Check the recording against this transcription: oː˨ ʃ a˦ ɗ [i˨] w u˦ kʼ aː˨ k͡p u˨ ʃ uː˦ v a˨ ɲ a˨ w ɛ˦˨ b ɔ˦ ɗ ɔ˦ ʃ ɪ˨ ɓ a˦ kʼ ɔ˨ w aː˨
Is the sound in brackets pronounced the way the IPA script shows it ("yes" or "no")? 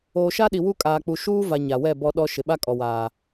yes